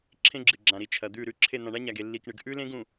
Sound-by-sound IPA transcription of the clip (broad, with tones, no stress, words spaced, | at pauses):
ǁʰẽ˦ɡ͡ǁɨ˨ɡ͡ǁã˨ɾi˨ t͡ʃʰɐ˨d̪ʉ˦˨ ɾʉ˦˨ǁʰe˦˨ n̪ã˨ɳa˦ɲa˨ɡ e˨lːi˨kɳɨ˨ɡ ʔʉ˦lẽ˦ɡũ˨